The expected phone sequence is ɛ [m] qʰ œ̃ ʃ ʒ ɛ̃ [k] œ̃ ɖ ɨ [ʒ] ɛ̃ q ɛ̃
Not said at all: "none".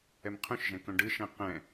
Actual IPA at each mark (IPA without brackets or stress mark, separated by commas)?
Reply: m, k, ʃ